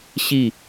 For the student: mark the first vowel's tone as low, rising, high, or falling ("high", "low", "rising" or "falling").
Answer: falling